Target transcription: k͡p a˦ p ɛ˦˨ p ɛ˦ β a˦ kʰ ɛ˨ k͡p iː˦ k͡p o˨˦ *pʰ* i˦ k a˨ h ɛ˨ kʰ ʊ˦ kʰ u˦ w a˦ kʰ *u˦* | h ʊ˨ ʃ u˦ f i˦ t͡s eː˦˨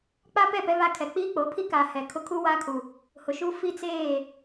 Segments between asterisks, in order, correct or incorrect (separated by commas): correct, incorrect